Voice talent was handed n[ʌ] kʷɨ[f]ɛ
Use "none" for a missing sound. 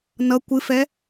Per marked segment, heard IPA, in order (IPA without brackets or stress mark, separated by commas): ʌ, f